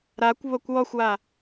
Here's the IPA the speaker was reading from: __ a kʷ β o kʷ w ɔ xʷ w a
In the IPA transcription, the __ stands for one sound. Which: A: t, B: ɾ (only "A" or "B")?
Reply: B